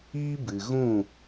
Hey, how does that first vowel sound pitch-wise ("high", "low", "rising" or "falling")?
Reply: high